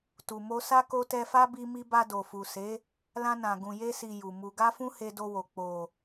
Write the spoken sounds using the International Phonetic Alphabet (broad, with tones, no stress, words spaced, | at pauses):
tu˨mo˧sa˦ ko˦ tɛ˧fa˦ bi˧mi˧ba˧ do˨fu˨se˨˦ | lã˧nã˨ ɡũ˨je˧si˨ ju˨mu˧ ɡa˦fũ˦ he˧do˧wo˨ k͡po˨